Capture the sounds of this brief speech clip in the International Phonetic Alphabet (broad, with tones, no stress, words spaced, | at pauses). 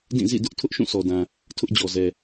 dĩ˦˨zḭ˦˨dʊ˦ʔ tʰʊ˦ʔʃũ˦˨sʰɔ˨dã˨ | tʰʊ˦ʔd͡ʑɔ˨ zɛ˨